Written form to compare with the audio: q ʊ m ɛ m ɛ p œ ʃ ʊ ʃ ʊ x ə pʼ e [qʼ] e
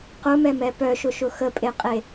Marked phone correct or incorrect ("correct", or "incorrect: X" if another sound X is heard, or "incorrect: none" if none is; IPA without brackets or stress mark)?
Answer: correct